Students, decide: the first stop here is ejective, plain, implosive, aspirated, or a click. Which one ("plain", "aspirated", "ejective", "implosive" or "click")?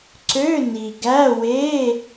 click